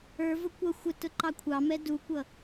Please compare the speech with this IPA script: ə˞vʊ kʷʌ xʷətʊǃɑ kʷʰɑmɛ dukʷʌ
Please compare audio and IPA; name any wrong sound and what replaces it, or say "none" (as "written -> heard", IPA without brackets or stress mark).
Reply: none